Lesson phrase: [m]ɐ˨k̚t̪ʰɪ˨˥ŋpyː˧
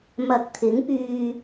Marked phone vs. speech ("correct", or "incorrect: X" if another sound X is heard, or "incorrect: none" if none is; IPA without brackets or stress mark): correct